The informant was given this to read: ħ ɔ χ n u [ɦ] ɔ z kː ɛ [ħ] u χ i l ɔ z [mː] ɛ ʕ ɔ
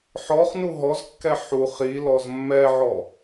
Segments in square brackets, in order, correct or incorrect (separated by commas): correct, correct, correct